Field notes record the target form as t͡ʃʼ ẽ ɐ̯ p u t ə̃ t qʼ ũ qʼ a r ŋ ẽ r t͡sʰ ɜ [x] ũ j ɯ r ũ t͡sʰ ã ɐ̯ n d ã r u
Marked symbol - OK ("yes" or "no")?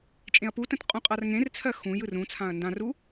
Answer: yes